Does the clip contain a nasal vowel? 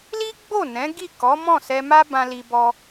yes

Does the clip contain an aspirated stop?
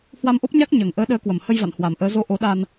no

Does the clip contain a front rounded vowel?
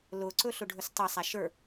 no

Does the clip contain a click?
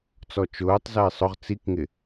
no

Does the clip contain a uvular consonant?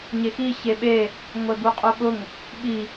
yes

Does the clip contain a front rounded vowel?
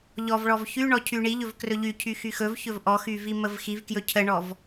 yes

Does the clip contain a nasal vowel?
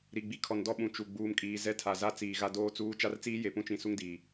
yes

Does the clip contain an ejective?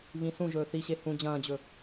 no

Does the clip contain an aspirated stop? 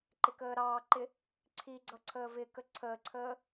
yes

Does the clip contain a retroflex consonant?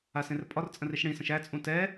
yes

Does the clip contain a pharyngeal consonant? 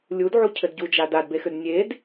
yes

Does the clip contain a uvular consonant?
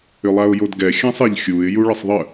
no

